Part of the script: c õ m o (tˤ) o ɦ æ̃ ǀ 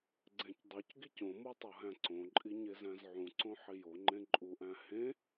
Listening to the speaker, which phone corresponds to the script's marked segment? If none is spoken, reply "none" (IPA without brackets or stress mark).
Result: tˤ